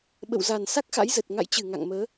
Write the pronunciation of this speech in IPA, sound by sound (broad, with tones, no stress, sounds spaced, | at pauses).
ɓ ə̰˧˨ w z a˨˩ n s a˦˥ k̚ x a̰˧˥ j z ə˨˩ t̚ ŋ a̰˧˨ j t͡ɕ ɨ˧˩ ŋ a̰˧˨ ŋ m əː˨˦